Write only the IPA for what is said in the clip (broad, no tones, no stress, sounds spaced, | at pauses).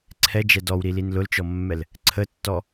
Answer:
ǀʰ ɛ d͡ʒ ɛ d ɔ w ɾ i l i n l ʊ l t͡ʃ ɔ mː ɛ l | ǀʰ ə tː ɔ